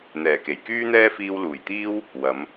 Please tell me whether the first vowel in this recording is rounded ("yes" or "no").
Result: no